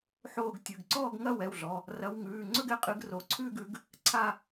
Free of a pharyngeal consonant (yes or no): no